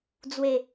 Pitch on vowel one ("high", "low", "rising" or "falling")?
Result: low